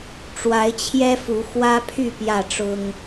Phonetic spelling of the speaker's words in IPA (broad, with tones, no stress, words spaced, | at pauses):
ʈ͡ʂwa˨˦ɪ̯t͡ɕʰjɛ˦fu˨˦ xwä˦pʰy˥˨ pjä˥˨ʈ͡ʂʊ˦ŋ